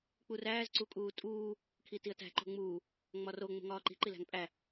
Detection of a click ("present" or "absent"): present